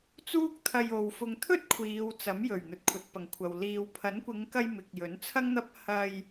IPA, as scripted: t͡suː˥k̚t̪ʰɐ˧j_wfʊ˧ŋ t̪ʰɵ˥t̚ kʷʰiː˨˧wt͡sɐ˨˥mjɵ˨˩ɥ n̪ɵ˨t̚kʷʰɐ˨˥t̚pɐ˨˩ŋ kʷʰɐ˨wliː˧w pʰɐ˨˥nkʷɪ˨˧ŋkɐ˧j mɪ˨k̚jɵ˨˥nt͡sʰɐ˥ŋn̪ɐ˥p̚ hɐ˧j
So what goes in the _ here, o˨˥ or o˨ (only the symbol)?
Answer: o˨